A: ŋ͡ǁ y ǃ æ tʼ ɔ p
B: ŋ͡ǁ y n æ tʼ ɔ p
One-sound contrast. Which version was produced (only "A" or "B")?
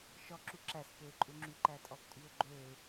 A